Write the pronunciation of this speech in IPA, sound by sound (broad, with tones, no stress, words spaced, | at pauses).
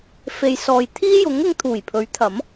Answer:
fe˨jsɔː˨j t̪ʰiː˥jʊ˨˥ŋ ʊ˨˧ŋt̪ʰuː˨˩jpʰɵ˨˥ɥt̪ʰɐ˨˥m